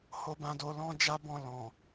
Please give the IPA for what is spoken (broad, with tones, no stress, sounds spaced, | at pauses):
h o˧ b ã˧ d o˧ l ɔ̃˦ d͡ʒ a˦ b ɔ̃˧ l ɔ̃˨